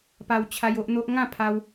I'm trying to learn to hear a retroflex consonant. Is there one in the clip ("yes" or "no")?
no